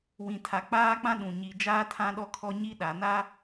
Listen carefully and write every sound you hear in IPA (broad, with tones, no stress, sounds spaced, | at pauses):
w ĩ˨ tʰ a˨ k͡p aː˦ k͡p ã˦ ɗ ũ˨ ɲ i˨ d͡ʒ aː˦ tʰ ã˦ ɗ ɔ˦ kʰ ɔ˦ ɲ i˦ ɗ a˨ n a˦